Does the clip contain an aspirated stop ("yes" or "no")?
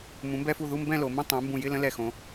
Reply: no